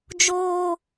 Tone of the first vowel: high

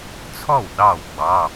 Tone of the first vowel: falling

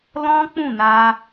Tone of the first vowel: high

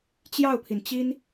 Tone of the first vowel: falling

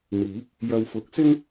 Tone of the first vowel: rising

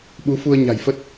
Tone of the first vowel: rising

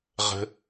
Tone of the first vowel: low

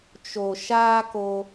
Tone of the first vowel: low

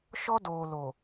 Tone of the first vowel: high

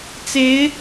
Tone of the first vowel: rising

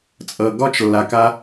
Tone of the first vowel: low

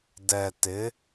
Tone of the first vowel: low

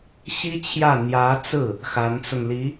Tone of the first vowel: high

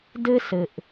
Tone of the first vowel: high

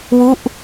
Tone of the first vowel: falling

